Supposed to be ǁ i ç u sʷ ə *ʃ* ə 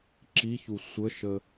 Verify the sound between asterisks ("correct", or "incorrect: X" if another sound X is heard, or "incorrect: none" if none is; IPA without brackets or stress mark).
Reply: correct